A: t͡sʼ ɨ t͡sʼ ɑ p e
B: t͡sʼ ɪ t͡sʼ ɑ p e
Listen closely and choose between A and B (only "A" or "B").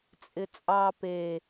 B